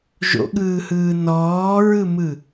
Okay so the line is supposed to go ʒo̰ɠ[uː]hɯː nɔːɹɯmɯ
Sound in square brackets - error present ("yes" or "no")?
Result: yes